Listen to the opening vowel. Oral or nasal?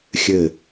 oral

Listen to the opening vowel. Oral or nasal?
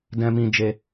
nasal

